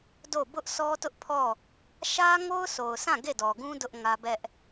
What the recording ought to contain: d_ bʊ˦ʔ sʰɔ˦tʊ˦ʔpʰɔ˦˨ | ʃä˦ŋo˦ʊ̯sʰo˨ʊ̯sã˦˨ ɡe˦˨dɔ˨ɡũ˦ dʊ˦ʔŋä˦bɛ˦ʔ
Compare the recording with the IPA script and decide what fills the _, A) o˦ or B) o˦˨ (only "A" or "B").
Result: B